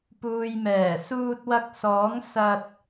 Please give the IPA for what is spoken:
p uː˨ j m ɛː˨˩ s uː˧ t̚ w ɐ˧ k̚ s ɔː˨˥ ŋ s ɐ˧ t̚

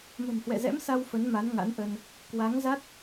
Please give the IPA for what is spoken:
m ə̤˨˩ m h w ɛ̰˧˨ z ɛ̰˧˥ m s a˧ w f ə˨˦ n m a˨˦ n ŋ a̰˧˥ n ʔ ə˧ n | k w a˨˦ ŋ z a˦˥ t̚

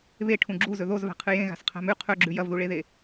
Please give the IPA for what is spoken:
β e ʈʰ ũ ɡ͡ǁ u z ɵ ð o z v a̤ qʰ ɨ j ẽ ɣ a̤ s qʰ a̤ m ʉ qʰ ɵ ɡ͡ǁ ʉ j ɐ v ð u ɭ e ð e

